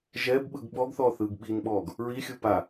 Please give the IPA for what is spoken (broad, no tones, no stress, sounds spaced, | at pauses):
ʒ ɛ b ɓ ɯ ɡ ɓ ɔ ɡ θ ɔː θ ɯː ɡ ɓ i n ɓ ɔː ɡ | ɹ i xʲ ɯ p a